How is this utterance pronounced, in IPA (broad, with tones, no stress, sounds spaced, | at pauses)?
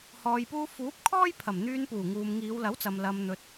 h ɔː˨ j p uː˧ f uː˨˥ p̚ kʰ ɔː˥ j pʰ ɐ˨˩ m n̪ yː˧ n p uː˨˩ ŋ uː˨ m ŋ iː˨˧ w l ɐ˨˥ w t͡s ɐ˨ m l ɐ˨ m n̪ ɵ˨ t̚